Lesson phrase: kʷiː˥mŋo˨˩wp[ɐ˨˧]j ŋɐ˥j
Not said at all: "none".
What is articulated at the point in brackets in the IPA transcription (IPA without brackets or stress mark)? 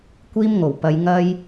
ɐ˨˧